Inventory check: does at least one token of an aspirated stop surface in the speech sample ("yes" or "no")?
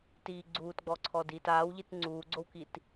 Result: yes